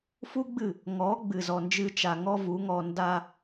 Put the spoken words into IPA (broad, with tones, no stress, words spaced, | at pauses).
fu˦ɡ͡bɨ˦˨ | ŋɔ˨˦ ɡ͡bɨ˨zɔ˨nd͡ʒɨ˧ t͡ʃa˧ŋɔ˦vu˨˦ŋɔ˧ nda˧